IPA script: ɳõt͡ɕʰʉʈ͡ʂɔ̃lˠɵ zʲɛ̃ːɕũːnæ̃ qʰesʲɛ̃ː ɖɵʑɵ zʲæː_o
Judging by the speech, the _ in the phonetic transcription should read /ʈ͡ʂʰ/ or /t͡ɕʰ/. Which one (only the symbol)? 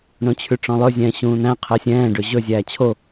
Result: t͡ɕʰ